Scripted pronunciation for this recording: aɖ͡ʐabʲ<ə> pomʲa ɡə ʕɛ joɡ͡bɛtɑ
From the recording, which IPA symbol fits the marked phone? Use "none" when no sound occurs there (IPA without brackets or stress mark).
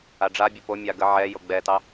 ə